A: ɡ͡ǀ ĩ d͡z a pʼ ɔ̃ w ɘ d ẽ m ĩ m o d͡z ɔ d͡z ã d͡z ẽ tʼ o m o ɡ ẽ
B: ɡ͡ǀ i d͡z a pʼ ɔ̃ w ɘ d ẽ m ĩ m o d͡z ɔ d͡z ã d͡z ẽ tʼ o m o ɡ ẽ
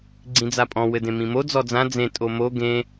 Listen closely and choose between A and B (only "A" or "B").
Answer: A